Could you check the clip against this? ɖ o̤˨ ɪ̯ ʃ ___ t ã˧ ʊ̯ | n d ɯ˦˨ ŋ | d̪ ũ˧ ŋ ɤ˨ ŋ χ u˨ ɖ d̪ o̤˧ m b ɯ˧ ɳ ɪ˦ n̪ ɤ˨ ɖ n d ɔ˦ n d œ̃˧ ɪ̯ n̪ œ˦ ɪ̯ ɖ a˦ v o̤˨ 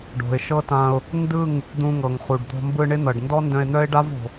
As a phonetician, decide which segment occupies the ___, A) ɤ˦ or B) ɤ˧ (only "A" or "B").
A